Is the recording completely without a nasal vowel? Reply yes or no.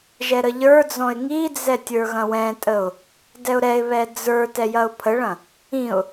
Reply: no